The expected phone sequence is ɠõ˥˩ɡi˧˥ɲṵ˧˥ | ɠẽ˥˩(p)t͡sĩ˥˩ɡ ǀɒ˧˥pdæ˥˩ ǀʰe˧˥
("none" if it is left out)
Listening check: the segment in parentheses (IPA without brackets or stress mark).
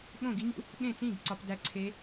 none